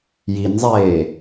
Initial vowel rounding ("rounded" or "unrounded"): unrounded